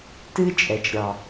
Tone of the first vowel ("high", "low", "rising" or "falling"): high